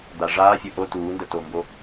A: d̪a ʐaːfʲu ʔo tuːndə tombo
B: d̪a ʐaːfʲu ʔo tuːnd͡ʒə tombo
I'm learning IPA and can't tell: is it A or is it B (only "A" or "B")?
A